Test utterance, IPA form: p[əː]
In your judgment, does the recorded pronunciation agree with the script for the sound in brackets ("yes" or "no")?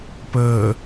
yes